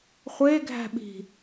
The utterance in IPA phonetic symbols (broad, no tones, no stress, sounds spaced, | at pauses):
χʷ e ɡʱ æ̤ ɓ i̤